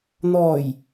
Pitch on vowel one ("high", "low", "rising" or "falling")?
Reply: low